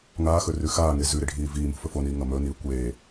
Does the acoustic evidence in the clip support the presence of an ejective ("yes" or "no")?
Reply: no